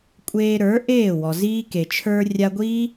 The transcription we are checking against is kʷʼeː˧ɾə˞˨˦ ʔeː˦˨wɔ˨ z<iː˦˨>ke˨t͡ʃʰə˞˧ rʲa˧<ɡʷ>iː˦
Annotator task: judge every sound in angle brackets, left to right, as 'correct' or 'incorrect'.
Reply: incorrect: iː˧, correct

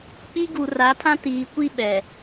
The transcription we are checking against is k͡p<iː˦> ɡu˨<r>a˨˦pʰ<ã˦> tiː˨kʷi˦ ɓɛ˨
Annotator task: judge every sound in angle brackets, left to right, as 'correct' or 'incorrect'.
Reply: incorrect: i˦, correct, correct

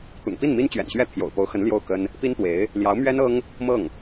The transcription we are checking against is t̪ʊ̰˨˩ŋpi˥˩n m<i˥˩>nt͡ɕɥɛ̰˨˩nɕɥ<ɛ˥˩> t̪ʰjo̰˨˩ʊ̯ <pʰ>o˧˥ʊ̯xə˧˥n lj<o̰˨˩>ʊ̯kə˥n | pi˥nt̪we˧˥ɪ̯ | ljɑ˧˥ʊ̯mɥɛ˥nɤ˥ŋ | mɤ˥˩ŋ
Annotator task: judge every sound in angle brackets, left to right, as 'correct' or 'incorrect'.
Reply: incorrect: i˥, correct, incorrect: p, incorrect: o˥˩

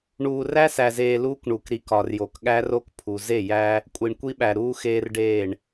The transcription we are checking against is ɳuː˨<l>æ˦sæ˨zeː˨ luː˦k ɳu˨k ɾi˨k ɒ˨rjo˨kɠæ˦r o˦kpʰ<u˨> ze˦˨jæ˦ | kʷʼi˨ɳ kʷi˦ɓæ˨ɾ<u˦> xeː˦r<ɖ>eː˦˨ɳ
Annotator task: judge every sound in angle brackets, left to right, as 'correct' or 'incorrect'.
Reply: incorrect: r, correct, incorrect: uː˦, correct

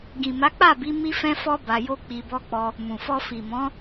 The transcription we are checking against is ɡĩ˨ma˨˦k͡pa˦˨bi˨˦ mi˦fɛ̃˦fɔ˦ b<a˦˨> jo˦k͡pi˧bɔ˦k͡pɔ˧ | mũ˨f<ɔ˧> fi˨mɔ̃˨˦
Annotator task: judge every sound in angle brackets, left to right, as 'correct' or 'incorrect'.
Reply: incorrect: a˧, correct

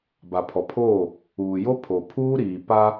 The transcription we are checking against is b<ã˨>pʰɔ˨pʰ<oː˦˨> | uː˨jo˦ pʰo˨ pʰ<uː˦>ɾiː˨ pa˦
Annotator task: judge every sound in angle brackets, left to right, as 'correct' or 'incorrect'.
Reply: incorrect: a˨, correct, correct

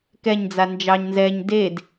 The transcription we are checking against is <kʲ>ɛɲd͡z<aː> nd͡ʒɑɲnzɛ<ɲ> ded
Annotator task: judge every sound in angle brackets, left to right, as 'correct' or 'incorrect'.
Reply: incorrect: k, incorrect: a, correct

